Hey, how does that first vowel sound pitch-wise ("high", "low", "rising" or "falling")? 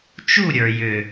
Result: falling